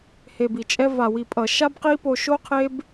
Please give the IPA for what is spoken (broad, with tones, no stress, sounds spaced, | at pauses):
h e˨ b i˨ t͡ʃʼ ɛ˧ v a˨ w i˨ pʼ ʌ˨ ʃ a˦ b q i˦ p o˧ ʃ o˦ qʰ e˦ b